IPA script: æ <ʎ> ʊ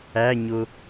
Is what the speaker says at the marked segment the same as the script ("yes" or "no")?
no